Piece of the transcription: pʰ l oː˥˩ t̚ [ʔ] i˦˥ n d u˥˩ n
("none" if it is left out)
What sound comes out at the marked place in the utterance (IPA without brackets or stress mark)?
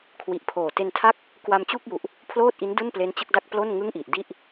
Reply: ʔ